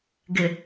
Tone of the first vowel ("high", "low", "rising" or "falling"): low